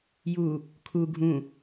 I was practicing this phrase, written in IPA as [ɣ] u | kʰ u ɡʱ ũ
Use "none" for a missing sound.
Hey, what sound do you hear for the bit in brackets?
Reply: j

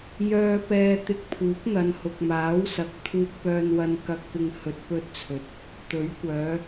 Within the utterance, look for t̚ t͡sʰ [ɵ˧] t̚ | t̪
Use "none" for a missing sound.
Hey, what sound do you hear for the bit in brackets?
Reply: ɵ˨˥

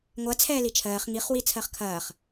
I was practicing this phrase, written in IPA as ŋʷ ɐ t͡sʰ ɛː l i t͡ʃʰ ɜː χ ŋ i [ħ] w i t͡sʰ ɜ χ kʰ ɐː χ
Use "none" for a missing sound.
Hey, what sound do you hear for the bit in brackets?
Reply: χ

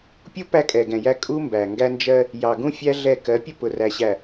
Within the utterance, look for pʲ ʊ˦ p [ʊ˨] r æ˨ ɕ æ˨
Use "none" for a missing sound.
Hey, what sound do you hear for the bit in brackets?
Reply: ʊ˨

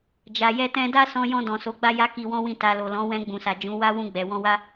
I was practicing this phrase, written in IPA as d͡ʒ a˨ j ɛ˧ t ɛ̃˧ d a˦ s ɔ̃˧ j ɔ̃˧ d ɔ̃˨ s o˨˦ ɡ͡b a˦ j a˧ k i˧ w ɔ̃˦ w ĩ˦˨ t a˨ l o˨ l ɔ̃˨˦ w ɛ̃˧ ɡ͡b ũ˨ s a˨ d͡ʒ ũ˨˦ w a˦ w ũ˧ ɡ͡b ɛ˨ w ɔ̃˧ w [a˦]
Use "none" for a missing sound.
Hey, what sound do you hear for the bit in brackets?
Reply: a˦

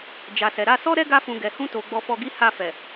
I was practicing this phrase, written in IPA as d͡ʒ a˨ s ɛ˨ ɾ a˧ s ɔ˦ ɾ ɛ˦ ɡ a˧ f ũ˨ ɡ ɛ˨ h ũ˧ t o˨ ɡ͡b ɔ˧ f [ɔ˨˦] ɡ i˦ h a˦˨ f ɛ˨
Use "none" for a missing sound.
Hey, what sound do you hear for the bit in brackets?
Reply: ɔ˧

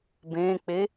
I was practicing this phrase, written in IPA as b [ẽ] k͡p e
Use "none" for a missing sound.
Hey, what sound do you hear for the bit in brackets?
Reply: ẽ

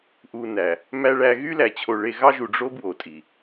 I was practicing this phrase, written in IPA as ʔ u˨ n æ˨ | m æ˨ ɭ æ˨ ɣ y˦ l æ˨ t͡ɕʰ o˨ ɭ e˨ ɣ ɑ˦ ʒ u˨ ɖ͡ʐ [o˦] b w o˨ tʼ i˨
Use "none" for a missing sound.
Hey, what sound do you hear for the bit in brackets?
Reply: o˦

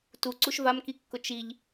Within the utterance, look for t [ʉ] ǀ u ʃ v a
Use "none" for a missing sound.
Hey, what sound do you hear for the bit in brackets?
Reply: u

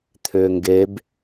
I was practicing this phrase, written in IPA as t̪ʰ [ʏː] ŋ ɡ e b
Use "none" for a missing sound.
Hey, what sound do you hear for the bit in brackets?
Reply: ʏː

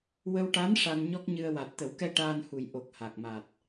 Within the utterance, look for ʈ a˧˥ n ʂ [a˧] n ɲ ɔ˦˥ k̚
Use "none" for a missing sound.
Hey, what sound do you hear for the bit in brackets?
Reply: a˧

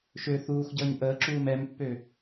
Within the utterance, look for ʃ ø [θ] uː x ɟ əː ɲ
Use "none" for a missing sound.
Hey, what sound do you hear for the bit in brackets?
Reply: θ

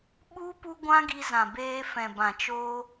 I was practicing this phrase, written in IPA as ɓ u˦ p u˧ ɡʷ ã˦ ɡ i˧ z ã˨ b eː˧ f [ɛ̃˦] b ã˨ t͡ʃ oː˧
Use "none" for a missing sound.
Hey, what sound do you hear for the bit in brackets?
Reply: ɛ̃˨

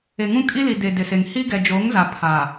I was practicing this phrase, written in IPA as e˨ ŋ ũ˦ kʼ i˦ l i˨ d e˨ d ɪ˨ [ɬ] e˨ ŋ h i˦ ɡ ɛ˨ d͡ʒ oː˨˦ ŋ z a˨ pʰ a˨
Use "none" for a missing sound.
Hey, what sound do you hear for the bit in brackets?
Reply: s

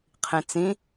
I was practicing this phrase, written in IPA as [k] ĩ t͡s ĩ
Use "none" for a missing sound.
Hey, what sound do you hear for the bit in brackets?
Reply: qʰ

